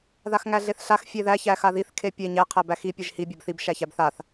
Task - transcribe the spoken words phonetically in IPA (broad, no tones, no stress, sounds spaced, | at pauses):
ð a x ŋ æ ɮ e θ ɬ a x fʲ e ð æ ç æ x a ð i θ kʰ e pʲ e ɲ æ qʰ æ b æ x i pʲ e ʒ h i bʲ a b θ i b ʃ æ ç æ b θ a θ